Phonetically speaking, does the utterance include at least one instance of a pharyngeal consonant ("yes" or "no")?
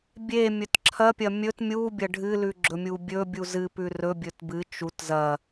no